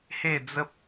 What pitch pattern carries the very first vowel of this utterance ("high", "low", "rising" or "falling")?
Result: falling